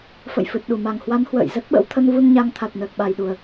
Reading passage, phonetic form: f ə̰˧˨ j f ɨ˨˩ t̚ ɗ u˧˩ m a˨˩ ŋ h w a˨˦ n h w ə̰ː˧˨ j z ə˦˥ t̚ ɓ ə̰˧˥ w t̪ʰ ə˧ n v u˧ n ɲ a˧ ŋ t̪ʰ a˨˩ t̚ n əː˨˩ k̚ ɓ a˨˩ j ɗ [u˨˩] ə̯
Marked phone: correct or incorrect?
correct